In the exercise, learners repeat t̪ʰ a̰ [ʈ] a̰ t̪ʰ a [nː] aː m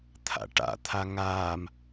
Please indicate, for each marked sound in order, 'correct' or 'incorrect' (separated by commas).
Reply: correct, incorrect